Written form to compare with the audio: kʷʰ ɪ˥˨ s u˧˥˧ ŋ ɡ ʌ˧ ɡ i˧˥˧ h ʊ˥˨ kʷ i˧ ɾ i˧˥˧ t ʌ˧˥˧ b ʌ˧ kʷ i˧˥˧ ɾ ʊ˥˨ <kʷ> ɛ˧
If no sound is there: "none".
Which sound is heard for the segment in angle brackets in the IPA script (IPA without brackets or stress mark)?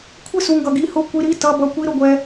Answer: ɡʷ